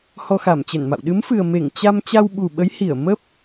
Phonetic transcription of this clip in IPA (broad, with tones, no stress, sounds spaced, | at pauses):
h ɔ˧ x a˧˩ m t͡ɕ ə˧˩ n m a̰˧˨ w ɗ ɨ˨˦ m f ɨ˨˩ ə̯ m e˧˩ ŋ t͡ɕ a˧ m t͡ɕ a˧ w ɓ u˨˩ ɓ ə˨˦ j h i˧˩ ə̯ m ə˦˥ p̚